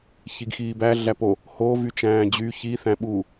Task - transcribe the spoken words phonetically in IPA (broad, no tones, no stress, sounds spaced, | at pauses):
ç i ɡ x iː b æ ɮ æ p o | h o v y t͡ʃ æ̃ː d͡ʑ y ç i θ æ̃ ɓ uː